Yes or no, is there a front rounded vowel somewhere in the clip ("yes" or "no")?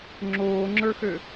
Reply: yes